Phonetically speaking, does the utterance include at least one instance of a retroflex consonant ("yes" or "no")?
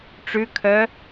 yes